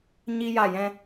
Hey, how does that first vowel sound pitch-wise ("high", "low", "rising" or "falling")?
high